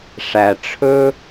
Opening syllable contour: low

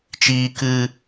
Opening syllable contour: high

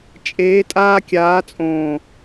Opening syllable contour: rising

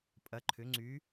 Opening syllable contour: rising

